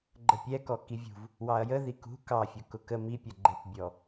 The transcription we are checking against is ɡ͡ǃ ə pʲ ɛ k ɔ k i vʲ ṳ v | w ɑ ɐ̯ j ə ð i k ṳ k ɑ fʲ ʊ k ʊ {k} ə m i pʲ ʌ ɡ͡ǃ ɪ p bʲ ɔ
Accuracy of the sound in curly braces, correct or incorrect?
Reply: correct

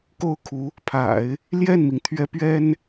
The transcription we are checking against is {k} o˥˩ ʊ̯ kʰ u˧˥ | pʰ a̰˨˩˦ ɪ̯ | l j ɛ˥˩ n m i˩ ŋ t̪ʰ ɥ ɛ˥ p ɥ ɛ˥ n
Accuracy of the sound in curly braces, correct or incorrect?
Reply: correct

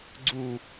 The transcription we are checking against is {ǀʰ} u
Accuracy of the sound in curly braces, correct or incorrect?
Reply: incorrect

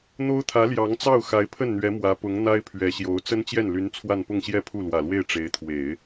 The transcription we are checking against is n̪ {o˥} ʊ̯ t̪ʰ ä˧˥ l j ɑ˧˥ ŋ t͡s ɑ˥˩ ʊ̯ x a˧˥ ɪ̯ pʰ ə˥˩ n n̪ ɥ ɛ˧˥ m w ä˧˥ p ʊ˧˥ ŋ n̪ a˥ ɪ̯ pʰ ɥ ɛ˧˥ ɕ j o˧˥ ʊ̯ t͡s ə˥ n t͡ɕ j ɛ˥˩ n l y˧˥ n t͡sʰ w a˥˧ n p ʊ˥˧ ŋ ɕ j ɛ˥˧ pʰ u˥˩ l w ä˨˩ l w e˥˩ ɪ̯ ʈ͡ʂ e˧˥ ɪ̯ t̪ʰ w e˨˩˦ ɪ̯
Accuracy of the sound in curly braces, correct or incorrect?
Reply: correct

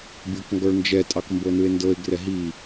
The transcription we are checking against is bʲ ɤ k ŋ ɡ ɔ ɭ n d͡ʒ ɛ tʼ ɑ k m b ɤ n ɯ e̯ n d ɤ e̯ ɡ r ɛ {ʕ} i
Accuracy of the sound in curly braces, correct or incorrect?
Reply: incorrect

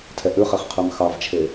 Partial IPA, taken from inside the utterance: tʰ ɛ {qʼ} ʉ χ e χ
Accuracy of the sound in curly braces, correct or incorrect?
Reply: incorrect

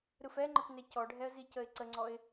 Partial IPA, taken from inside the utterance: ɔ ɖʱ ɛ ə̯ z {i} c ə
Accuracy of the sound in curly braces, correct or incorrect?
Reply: correct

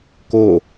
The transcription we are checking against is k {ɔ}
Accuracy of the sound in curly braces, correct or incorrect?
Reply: incorrect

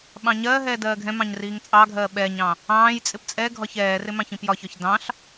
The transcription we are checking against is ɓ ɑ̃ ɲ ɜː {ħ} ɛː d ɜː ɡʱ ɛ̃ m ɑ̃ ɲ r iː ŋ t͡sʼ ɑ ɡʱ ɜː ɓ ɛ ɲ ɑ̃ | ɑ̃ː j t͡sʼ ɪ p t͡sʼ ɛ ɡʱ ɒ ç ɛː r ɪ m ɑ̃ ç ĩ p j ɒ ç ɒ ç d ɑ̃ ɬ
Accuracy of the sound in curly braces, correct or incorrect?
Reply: incorrect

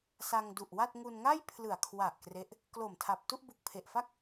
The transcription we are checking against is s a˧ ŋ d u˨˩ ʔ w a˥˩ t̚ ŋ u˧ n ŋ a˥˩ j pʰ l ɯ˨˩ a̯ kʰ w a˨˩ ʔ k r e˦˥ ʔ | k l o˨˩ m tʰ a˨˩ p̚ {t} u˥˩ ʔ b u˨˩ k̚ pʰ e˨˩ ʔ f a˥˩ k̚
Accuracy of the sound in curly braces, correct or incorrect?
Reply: correct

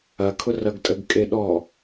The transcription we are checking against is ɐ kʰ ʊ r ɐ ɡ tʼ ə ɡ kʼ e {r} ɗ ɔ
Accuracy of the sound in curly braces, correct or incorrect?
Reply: incorrect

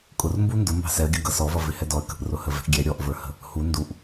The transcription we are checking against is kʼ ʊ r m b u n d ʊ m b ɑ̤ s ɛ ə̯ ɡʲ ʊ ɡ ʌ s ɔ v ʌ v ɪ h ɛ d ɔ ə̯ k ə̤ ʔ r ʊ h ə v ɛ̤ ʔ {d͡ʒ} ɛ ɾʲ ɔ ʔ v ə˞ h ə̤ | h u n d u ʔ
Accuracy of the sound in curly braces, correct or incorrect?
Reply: incorrect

